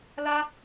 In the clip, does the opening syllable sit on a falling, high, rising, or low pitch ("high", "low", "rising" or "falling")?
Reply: high